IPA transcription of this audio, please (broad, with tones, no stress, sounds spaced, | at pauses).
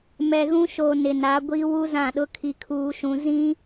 m ɛ˨ ɣ ũ˦ ʃ o˨ n ɪ˨ n a˨˦ ɡʷ i˦ w u˦ z ã˦˨ ɗ ʊ˦ kʰ i˦ kʰ uː˦ ʃ ũ˦ z ĩ˦